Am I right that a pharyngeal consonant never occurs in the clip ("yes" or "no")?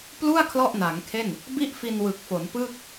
yes